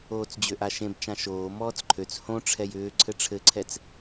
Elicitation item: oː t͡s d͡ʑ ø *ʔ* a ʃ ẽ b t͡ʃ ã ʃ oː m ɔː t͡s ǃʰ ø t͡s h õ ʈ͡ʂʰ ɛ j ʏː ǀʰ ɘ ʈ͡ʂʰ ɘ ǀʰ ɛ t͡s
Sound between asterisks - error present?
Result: no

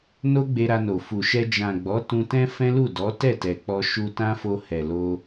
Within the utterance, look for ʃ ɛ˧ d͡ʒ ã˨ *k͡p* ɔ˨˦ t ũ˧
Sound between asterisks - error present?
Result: yes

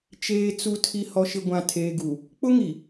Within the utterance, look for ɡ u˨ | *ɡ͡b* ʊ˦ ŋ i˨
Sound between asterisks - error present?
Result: yes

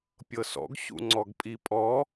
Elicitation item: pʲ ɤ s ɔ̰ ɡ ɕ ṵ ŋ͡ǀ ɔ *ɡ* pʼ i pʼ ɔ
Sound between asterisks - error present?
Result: no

